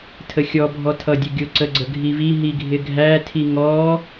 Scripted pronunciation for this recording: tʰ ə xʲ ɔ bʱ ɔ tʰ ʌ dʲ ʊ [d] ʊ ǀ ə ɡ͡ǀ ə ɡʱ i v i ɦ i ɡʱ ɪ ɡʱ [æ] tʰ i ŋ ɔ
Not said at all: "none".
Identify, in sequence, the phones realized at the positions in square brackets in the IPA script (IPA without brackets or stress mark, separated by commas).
ɡʲ, æ